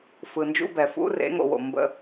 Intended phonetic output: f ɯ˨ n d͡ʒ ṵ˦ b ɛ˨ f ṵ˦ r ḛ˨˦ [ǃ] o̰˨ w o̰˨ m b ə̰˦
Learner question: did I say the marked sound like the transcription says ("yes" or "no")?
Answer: no